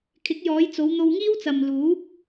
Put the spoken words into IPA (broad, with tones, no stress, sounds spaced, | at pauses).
kʰ ɪ˨˥ k̚ j ɔː˨˧ j t͡s o˨˧ w n̪ o˧ w ŋ iː˥ w t͡s ɐ˨ m l uː˨˥ p̚